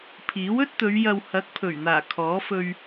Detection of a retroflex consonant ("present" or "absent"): absent